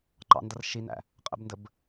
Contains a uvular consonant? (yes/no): yes